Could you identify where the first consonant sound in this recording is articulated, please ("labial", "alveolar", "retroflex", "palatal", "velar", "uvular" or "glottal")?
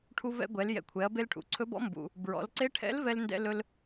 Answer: retroflex